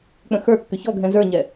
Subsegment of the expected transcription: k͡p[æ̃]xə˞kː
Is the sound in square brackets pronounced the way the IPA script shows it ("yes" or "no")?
no